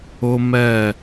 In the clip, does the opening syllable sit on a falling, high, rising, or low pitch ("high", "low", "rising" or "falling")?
high